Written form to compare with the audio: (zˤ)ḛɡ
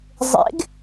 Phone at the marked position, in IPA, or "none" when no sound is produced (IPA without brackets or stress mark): zˤ